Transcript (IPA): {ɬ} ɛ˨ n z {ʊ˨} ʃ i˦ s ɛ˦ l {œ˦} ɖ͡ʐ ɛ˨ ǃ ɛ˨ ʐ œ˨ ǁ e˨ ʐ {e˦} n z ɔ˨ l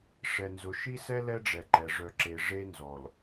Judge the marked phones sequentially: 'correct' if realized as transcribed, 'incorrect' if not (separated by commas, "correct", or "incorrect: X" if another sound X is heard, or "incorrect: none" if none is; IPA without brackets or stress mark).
incorrect: ʂ, correct, incorrect: ɛ˦, correct